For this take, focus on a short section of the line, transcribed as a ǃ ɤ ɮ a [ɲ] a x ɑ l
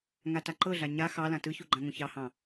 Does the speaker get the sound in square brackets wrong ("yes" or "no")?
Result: no